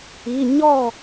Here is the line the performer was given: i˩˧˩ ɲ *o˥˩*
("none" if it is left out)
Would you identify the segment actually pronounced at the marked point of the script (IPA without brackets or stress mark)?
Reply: ɔ˥˩